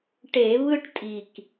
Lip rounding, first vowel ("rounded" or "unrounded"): unrounded